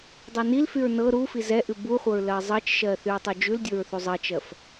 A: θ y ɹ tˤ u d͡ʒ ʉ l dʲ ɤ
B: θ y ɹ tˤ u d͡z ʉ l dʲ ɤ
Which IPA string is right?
A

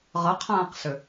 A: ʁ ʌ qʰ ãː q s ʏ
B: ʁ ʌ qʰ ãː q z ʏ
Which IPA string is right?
A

